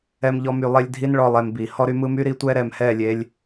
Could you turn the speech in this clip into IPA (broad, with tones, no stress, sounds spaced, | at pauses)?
ɛ˦ m ʎ ɔ˦ m y˧ lˠ e˦ lʲ dʱ i˦ n ɭ ɔ˧ lˠ ɛ˧ m b i˨ h ɔ˦ ɾ y˦ m ɯ˦ m y˦ ɾ i˦ tʷ ɛ˦ ɾ ɛ˨ m h ɛ˦˨ lʲ e˧ lʲ